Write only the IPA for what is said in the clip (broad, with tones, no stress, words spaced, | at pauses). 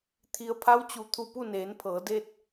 t̪ʰi˩ə̯pʰa˧˥wt͡ɕu˩ t̪ʰu˧˩pu˥˨neː˩˧npʰɤː˩˧ de˧t̚